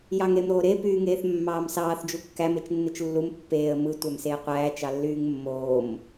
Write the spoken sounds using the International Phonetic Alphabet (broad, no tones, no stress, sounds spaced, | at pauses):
j ɑ ŋ ɾ e m ɾ oː ɾ e p yː ŋ eː θ mː ɑː m s ɑː θ d͡ʒ u kː æ m e t͡ʃ nː ɯ t͡ʃ lː u m pː eː ə̯ m ɯ tʷ æ m s eː qʷ æː t͡ʃ ɑ lː yː ŋ mː oː m